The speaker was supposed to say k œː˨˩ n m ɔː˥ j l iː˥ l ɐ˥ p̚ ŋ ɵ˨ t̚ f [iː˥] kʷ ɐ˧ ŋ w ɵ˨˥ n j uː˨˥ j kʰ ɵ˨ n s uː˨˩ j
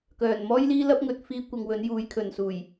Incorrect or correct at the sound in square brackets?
correct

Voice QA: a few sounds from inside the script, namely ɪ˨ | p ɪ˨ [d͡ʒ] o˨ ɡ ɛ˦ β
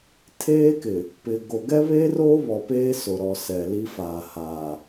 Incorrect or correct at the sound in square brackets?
incorrect: ɡ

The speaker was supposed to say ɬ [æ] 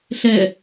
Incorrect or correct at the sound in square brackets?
incorrect: ɛ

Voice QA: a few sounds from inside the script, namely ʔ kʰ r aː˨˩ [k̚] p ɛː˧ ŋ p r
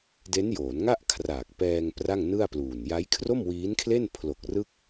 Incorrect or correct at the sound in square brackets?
correct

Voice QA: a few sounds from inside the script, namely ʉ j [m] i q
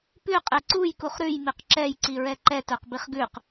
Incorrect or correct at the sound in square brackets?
correct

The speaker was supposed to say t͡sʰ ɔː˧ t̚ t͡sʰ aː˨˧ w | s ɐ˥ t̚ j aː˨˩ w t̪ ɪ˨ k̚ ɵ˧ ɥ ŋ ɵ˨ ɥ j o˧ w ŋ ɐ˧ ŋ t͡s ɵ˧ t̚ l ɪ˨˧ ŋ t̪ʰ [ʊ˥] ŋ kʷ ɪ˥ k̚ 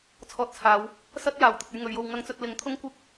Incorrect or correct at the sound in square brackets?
correct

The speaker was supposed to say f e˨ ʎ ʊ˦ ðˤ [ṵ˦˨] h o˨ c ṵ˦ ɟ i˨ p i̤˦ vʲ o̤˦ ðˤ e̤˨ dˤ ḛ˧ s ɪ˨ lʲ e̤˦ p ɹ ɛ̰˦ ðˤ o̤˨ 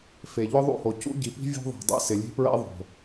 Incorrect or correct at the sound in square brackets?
correct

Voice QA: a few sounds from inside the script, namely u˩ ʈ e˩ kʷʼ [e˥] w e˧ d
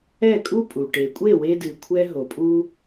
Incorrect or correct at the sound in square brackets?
incorrect: e˥˩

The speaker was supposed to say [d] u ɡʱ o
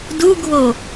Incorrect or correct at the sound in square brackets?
correct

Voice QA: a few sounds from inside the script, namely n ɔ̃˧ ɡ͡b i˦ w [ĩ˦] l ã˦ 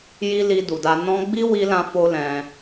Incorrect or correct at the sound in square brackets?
incorrect: i˦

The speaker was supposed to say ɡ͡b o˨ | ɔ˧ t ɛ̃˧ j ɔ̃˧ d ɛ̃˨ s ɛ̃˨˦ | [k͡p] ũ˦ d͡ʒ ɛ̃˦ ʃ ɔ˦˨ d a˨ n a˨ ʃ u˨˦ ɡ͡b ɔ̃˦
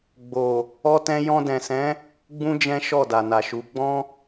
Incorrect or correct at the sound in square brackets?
incorrect: ɡ͡b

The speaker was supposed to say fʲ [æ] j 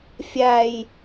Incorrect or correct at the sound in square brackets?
correct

